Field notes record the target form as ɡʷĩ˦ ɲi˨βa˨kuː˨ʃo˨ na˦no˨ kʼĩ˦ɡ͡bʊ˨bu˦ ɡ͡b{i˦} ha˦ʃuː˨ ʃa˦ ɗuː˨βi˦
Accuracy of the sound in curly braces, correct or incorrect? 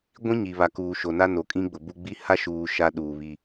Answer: correct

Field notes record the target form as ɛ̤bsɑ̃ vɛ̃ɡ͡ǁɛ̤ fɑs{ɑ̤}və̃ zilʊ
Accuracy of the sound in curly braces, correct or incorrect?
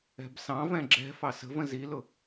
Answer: incorrect: ə̤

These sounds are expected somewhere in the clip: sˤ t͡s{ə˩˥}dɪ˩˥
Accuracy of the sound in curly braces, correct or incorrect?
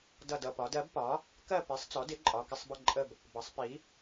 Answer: incorrect: ɔ˩˥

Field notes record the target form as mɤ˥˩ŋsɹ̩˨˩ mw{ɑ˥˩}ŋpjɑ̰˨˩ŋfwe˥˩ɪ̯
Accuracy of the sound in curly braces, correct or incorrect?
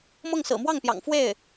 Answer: correct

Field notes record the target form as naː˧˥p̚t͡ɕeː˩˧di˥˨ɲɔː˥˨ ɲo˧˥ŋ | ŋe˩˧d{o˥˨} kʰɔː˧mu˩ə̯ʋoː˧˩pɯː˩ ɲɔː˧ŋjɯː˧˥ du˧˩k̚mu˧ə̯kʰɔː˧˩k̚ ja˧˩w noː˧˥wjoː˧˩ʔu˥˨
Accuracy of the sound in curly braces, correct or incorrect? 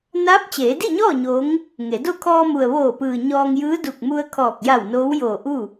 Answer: correct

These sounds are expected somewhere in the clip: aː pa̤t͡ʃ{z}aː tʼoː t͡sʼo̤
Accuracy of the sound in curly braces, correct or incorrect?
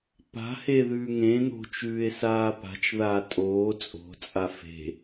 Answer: incorrect: ð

